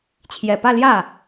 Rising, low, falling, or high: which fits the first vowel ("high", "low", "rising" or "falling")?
low